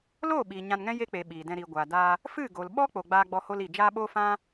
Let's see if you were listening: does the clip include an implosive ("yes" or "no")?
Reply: yes